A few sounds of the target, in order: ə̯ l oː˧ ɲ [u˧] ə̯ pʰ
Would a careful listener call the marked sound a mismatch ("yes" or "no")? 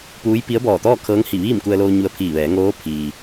no